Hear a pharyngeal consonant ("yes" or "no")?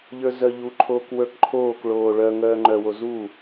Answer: no